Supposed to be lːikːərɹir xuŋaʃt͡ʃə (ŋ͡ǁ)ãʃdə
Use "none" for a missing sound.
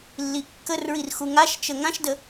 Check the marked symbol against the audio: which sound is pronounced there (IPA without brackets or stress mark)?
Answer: ŋ